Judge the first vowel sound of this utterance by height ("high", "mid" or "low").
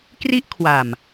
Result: high